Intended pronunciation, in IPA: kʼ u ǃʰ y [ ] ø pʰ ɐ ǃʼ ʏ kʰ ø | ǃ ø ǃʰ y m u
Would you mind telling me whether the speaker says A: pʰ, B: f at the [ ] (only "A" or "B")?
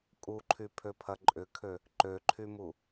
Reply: A